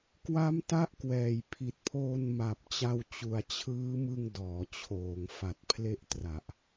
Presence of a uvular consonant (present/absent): absent